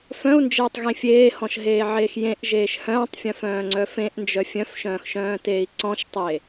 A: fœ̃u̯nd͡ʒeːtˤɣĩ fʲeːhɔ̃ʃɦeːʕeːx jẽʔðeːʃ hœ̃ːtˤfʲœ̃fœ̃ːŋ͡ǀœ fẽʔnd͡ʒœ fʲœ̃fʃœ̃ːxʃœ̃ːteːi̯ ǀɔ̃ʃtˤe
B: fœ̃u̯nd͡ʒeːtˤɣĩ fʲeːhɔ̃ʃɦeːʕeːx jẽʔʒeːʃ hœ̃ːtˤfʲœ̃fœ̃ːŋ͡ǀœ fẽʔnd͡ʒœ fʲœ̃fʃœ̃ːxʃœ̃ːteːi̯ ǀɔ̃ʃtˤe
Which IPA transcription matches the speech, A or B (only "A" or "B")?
B